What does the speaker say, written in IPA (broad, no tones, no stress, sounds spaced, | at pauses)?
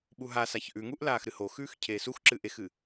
ɓ u ɦ a s a ç ʔ ʉ ŋ u ʔ l aː x ɾ ɨ h o x ʉː x cʰ eː s u x ǁ ɨ ʔ e x ɨ